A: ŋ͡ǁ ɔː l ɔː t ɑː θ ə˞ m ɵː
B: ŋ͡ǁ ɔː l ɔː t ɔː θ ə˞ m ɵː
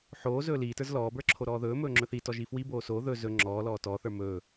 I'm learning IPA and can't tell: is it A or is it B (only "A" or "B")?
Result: B